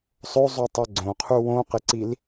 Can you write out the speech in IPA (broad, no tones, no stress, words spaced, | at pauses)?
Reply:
sˤo zˤutˤɜɡ͡ǀõqʰu wõqɪǀil